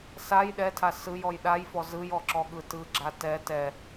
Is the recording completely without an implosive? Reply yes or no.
no